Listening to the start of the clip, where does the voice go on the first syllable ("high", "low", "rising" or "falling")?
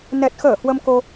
low